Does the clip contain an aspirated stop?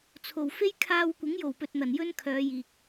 yes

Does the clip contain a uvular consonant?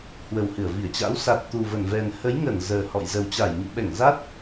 no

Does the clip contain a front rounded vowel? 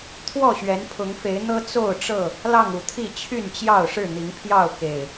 yes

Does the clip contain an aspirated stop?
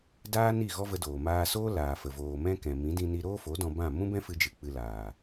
no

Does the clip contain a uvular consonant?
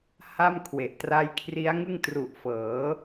no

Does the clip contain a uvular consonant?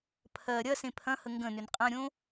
yes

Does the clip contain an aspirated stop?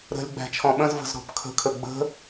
yes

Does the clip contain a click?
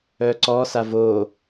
yes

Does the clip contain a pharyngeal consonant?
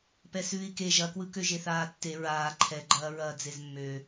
no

